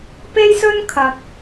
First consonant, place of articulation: labial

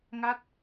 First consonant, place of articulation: velar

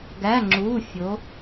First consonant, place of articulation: velar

